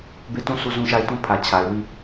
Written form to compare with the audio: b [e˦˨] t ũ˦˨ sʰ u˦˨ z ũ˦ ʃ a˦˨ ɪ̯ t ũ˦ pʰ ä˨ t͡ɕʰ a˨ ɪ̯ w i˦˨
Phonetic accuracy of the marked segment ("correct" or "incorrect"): correct